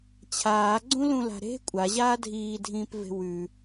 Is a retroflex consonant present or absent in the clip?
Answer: absent